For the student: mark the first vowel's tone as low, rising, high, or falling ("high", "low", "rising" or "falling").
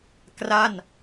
falling